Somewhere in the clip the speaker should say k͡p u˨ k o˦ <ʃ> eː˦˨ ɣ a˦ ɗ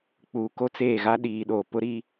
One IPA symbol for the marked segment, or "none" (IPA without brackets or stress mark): t͡s